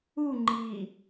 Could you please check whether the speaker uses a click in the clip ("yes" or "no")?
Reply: yes